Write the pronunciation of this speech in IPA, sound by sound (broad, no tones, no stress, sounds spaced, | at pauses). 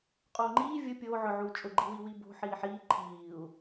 qʼ oː ŋ͡ǃ iː vʲ ʊ pʲ oː ʕ ʊ ʕ uː t͡ʃʼ ʊ ɡ͡ǃ i w i w i b o̤ ħ iː ħ iː ǃʰ iː u̯